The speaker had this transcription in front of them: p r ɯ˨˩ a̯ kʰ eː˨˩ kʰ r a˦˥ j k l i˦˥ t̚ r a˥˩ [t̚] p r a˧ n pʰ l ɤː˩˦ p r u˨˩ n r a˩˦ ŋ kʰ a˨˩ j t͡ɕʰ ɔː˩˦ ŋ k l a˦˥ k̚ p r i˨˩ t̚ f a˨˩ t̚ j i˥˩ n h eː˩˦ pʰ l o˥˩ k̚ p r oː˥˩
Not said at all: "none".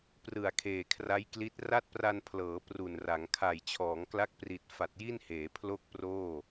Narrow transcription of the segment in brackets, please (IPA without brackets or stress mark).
t̚